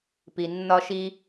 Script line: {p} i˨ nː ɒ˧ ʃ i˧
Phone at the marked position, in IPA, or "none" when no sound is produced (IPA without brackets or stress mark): p